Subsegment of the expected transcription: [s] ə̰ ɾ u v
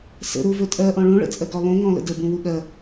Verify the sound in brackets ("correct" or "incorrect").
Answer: correct